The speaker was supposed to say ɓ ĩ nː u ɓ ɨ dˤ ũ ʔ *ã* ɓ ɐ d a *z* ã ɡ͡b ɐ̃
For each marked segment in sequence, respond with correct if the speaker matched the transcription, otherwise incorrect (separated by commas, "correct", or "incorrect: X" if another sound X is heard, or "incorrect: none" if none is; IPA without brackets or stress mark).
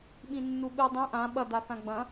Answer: correct, incorrect: θ